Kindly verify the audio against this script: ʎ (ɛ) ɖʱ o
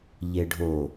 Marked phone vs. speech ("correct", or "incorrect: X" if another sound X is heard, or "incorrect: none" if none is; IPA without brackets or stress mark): incorrect: e